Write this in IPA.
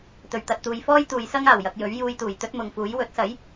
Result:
t̪ ɵ˨˩ ɥ t̪ ɐ˨ t̚ t̪ uː˨ j f ɔː˥ j t̪ uː˨ j s ɐ˥ ŋ aː˨˩ w j ɐ˧ k̚ j ɵ˨˥ ɥ j uː˧ j t̪ uː˨˩ j t̪ ɵ˥ t̚ m ʊ˨˧ ŋ f uː˨˥ j w ɵ˨˥ t̚ s ɐ˨˥ j

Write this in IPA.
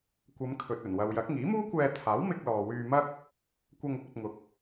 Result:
kʷ ɐ˨˧ m kʰ ɵ˨ t̚ ɵ˨˩ n w ɐ˨ w j ɐ˨˥ k̚ ŋ iː˨˥ m uː˥ kʷ ɛː˧ t̪ʰ aː˨˥ w m ɪ˧ k̚ l ɔː˨ w yː˧ m ɐ˥ k̚ | kʷ ɐ˧ ŋ ʊ˥ k̚ ɵ˨ t̚ ŋ ʊ˨ k̚

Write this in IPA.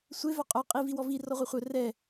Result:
sʷ e v œ qʼ œ qʼ i v i w ɔ v i r ɔ ʁʷ ɛ χʷ œ r ɛ

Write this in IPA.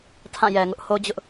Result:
tʰ ã˦˨ j ɛ˨ ŋ ʊ˦ ʔ h o˦ d͡ʑ ʊ˦ ʔ

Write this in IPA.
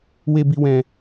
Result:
w e˧ b i˧ w ɛ̃˧

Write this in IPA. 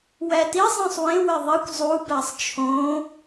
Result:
w æ t i zˤ ĩ sˤ w ẽ w e ðˤ i kʷ zˤ u b æ sˤ t͡ʃʰ õ

